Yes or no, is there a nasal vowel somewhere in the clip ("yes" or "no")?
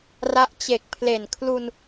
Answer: no